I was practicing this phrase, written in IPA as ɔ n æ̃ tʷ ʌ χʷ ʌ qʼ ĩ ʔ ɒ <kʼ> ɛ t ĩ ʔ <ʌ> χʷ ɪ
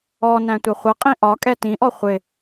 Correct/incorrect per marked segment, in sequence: correct, incorrect

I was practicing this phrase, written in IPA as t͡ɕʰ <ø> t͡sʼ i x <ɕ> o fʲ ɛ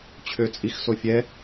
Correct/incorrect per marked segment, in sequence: correct, incorrect

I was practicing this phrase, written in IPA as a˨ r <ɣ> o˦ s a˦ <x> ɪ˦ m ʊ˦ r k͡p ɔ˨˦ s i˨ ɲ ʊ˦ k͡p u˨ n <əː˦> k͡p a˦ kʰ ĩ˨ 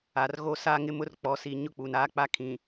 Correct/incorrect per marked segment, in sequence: correct, incorrect, incorrect

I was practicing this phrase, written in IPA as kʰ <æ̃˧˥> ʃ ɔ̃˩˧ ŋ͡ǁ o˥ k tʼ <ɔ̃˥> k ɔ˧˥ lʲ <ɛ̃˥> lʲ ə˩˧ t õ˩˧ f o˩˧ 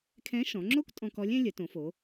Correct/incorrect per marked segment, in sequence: incorrect, incorrect, correct

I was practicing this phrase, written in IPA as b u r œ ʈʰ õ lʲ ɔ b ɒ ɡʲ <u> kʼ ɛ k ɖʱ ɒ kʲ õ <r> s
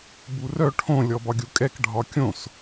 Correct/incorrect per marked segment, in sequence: correct, incorrect

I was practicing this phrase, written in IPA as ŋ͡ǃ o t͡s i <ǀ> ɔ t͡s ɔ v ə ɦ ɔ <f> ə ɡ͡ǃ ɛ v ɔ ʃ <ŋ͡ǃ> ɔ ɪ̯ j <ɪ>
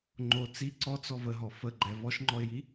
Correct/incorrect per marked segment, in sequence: correct, correct, correct, incorrect

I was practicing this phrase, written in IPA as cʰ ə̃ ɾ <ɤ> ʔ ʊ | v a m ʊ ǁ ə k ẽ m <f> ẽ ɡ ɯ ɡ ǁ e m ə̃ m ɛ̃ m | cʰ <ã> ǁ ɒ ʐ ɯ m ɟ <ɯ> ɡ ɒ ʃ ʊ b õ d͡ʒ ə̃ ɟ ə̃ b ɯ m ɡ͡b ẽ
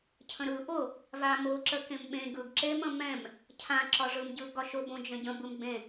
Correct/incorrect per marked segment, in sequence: incorrect, incorrect, correct, correct

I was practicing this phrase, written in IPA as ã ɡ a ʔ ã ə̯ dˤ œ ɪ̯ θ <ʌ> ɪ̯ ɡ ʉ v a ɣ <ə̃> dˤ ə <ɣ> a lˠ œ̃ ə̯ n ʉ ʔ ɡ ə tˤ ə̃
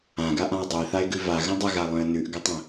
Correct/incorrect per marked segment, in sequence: incorrect, correct, correct

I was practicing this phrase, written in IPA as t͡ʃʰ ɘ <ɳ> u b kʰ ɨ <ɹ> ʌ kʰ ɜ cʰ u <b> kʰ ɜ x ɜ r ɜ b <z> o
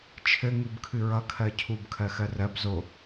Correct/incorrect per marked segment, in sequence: incorrect, correct, correct, correct

